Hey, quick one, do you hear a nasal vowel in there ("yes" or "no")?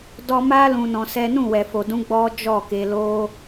yes